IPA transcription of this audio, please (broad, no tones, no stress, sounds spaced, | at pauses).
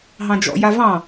ɦ ɑ̃ d͡ʒ ɔ̰ j a v ɑ̃